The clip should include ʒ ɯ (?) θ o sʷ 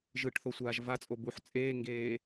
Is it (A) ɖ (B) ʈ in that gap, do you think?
B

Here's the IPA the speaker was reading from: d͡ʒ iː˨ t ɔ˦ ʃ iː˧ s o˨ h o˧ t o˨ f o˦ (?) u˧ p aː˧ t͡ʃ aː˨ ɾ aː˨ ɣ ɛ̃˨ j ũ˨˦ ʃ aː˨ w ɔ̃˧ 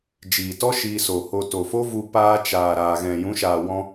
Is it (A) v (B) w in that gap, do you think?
A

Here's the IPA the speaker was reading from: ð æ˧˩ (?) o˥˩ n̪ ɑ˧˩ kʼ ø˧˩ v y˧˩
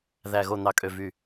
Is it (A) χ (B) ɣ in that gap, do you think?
B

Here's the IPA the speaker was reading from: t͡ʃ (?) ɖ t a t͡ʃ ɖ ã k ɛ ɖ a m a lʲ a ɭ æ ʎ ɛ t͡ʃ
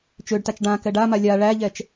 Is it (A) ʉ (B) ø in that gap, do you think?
B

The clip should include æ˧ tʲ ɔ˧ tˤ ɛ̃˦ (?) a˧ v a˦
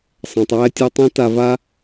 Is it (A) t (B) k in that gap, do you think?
A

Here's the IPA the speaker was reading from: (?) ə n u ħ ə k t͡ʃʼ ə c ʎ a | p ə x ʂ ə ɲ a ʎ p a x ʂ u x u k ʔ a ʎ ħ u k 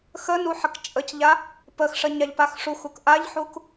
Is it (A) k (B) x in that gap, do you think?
B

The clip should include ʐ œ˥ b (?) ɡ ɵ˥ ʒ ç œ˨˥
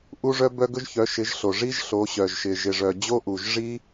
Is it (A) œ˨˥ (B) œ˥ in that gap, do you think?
B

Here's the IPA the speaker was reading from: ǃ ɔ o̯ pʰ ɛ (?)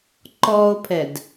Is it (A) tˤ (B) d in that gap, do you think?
B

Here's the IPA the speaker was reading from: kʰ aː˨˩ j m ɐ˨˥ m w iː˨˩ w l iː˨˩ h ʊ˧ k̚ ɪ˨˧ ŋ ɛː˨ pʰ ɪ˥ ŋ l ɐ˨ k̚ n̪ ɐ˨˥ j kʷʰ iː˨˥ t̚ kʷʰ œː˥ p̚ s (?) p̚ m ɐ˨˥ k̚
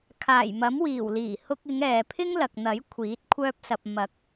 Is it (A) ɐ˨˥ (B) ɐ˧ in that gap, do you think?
B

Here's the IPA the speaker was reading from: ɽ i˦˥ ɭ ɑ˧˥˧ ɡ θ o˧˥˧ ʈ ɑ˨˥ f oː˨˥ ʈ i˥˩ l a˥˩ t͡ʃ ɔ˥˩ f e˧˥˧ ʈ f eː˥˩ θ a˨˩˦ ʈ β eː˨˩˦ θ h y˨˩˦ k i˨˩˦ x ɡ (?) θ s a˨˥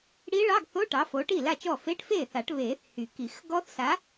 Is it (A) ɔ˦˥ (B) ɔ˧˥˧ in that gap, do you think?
A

